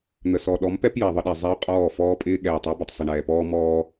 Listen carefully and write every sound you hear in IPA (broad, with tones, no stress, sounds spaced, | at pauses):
n̪ ə˨ s ɔ˨ ɗ ɔ˨˦ m p ɛ˦ p j ɛ˨ ðˤ ə˦ ɗ ɛ˨ zˤ ɛ˦ ʊ̯ qʼ ɔː˦˨ f ɔː˦ pʼ ɪː˦ ɠ ɛː˨ tˤ ɛ˦ b ə˨ tˤ sˤ ɪ˨ ɳ ɛː˨ p ɔː˦ m ɔː˦